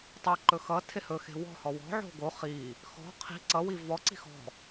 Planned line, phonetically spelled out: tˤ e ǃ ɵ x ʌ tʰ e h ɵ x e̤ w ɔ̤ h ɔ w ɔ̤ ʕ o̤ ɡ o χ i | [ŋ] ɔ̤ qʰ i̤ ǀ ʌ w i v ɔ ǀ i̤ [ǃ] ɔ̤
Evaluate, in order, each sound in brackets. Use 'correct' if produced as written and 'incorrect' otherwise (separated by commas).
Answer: incorrect, incorrect